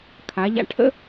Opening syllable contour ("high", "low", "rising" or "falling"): rising